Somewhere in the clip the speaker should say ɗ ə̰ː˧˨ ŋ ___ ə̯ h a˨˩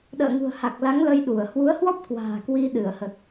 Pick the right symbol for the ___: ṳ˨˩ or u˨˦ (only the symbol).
ṳ˨˩